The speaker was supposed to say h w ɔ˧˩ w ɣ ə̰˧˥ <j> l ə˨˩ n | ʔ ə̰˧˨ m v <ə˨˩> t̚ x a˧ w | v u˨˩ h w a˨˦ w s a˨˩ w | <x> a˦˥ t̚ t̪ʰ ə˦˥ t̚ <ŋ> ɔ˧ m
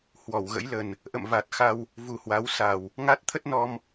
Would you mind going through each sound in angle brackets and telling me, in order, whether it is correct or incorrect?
correct, incorrect: a˨˩, incorrect: ŋ, incorrect: n

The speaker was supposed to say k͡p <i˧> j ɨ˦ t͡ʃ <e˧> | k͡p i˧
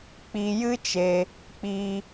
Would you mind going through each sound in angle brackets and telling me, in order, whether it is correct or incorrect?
correct, correct

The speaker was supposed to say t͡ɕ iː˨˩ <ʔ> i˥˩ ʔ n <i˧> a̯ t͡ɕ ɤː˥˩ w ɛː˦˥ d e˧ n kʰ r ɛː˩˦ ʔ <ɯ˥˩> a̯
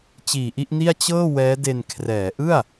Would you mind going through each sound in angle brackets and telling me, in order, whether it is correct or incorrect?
correct, incorrect: i˥˩, correct

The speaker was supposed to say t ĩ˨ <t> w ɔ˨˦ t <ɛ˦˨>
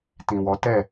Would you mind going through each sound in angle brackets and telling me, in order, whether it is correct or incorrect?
incorrect: none, correct

